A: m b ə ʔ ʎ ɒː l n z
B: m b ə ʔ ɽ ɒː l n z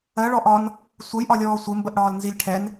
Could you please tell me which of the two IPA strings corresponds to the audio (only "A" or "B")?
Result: B